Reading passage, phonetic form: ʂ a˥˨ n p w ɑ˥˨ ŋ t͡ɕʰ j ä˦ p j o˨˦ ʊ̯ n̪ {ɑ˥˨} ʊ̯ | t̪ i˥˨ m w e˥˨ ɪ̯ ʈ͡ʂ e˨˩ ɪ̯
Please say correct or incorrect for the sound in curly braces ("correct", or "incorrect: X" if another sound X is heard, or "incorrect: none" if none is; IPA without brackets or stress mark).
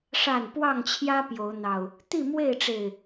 incorrect: ɑ˨˩